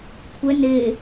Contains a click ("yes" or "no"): no